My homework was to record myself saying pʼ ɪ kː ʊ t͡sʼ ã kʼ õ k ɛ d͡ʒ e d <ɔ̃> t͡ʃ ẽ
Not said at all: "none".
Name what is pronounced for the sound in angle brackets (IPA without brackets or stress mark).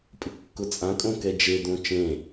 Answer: õ